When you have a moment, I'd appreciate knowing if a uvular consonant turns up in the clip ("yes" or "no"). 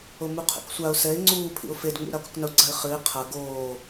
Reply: yes